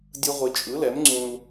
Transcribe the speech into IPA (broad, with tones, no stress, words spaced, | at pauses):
dʲɯ˦ ʁʷi˨t͡ʃʼɯ˨˦lɛ˨˦m ŋ͡ǀũ˦l